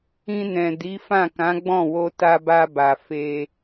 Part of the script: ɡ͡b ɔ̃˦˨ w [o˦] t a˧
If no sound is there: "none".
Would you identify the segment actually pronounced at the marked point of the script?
o˧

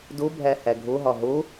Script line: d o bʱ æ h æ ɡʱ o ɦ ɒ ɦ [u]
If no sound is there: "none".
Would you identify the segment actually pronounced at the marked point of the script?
o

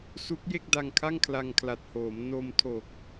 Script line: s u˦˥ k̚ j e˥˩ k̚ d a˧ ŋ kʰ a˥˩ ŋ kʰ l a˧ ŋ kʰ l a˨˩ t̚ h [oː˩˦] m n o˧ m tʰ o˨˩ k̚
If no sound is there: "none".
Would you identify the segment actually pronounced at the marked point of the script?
oː˩˦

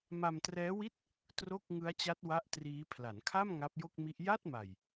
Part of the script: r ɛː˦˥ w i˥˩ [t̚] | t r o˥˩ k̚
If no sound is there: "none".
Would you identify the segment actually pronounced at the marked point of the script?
t̚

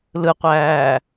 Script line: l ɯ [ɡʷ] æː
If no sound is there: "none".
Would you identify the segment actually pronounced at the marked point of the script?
qʷ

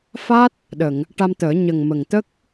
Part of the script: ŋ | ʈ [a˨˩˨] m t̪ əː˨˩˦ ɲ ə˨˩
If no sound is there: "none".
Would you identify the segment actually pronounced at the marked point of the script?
a˧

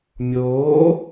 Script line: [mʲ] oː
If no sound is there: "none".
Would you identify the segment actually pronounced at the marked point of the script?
mʲ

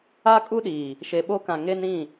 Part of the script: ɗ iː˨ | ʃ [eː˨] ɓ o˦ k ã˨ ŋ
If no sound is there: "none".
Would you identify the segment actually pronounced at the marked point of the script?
e˨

